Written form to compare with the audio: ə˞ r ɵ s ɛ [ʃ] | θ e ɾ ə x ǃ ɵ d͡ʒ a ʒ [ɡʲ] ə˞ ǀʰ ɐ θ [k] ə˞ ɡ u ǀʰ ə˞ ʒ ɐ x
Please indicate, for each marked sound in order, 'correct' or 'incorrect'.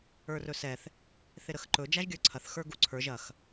incorrect: θ, correct, incorrect: x

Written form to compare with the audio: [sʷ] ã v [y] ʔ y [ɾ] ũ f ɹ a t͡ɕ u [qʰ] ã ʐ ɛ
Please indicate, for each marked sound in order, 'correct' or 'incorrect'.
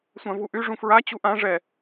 correct, incorrect: u, incorrect: ʐ, incorrect: ʔ

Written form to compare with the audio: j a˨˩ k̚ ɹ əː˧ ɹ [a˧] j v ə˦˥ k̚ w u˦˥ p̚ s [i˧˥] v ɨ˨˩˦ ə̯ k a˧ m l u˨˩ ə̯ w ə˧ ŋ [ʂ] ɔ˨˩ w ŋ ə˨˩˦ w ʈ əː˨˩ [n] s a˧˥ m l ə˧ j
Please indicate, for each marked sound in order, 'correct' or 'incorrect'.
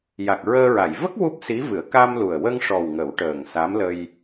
incorrect: a˨˩˨, correct, correct, incorrect: ŋ

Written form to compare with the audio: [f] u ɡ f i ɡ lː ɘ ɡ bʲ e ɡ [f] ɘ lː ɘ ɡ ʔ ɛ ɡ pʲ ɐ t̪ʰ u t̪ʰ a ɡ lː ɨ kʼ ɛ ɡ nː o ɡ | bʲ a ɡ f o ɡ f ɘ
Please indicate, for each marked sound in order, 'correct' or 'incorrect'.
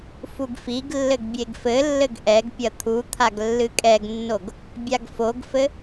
correct, correct

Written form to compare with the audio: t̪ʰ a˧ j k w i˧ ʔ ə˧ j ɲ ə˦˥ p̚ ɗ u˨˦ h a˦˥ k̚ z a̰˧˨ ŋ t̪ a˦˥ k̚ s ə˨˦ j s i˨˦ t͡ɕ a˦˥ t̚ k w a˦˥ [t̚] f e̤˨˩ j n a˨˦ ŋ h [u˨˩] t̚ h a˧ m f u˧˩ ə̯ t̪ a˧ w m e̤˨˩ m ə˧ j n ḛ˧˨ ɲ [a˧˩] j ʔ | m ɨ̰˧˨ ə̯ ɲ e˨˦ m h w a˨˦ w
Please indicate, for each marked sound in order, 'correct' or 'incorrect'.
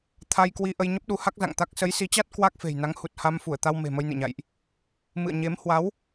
incorrect: k̚, correct, incorrect: a̰˧˨

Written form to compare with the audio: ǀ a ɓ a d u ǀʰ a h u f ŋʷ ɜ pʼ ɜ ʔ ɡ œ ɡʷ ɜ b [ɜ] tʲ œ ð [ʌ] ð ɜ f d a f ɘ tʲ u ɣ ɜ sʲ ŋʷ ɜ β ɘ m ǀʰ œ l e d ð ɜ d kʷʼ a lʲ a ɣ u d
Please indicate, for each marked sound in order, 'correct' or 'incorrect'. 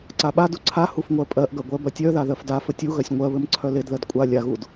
correct, incorrect: a

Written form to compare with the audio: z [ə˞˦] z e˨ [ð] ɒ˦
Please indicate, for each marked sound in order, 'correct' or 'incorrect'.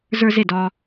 correct, incorrect: d

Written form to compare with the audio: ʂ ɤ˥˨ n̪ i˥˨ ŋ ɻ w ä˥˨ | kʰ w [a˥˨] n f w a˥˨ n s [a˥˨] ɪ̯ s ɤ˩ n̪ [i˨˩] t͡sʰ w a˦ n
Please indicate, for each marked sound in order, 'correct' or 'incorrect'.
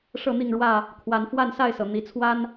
incorrect: a˨˦, correct, correct

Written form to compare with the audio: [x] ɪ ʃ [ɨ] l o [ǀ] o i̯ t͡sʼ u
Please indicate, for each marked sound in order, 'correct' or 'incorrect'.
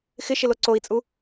correct, incorrect: ɪ, correct

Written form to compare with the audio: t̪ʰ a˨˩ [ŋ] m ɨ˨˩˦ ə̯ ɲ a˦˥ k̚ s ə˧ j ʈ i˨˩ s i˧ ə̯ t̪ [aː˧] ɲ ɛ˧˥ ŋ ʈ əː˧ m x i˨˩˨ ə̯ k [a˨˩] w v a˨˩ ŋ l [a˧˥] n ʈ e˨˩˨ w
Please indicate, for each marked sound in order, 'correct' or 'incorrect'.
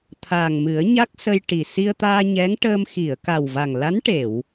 correct, correct, correct, correct

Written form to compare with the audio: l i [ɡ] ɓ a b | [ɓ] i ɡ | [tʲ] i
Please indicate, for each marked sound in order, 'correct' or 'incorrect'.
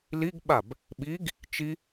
correct, correct, incorrect: t͡ʃ

